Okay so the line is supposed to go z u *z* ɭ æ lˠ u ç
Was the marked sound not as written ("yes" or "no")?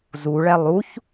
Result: yes